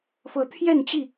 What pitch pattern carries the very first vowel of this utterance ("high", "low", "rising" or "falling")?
rising